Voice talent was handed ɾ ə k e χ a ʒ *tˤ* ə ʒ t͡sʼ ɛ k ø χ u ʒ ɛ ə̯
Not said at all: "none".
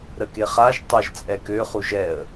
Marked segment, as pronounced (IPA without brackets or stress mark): tˤ